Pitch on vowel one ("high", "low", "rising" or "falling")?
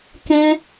high